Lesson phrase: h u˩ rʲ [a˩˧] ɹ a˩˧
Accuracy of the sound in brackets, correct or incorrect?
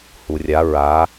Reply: correct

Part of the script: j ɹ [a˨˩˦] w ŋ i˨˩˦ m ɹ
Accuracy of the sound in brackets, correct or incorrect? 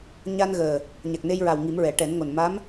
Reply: incorrect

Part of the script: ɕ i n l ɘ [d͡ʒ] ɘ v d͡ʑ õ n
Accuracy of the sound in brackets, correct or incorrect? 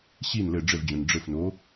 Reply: incorrect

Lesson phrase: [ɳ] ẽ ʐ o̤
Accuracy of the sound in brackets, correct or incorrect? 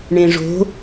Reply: correct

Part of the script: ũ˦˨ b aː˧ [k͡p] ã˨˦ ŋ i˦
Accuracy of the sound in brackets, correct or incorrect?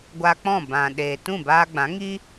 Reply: incorrect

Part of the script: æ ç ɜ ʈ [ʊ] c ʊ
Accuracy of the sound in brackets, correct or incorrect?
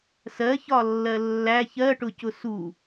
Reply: correct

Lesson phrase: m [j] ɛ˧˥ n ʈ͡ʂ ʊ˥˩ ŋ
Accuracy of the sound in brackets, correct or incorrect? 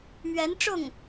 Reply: incorrect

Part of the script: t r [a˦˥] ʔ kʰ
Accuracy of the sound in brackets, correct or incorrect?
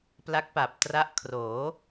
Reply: correct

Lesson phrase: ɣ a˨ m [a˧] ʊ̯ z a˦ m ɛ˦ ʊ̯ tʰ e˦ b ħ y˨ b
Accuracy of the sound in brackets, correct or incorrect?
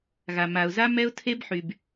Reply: incorrect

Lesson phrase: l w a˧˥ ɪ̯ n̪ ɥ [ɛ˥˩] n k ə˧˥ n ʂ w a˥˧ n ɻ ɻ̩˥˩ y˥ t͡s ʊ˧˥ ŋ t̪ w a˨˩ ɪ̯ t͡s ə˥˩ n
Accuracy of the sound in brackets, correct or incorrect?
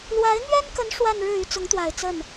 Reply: incorrect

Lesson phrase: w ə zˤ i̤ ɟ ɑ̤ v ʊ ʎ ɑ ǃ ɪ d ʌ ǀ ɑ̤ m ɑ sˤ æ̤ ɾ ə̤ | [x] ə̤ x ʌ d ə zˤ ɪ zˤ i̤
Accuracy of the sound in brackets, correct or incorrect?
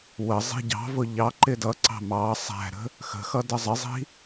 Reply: correct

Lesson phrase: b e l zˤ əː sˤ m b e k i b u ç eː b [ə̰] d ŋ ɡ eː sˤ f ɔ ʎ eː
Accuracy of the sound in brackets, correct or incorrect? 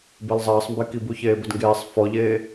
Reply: incorrect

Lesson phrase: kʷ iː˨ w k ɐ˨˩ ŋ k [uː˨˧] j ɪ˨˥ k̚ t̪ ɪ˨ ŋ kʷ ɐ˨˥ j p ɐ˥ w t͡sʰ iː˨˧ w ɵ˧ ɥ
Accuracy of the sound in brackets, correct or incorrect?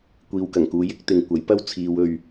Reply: correct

